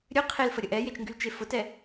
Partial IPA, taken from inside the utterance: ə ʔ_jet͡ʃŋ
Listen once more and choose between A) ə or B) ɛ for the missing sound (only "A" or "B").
B